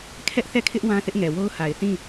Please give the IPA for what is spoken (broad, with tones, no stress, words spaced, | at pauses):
kʰɛ˦ʔθɛ˦˨kʰɪ˦ʔ wã˦θɪ˦ʔŋɛ˨wo˦ʊ̯ ha˨ɪ̯θĩ˦˨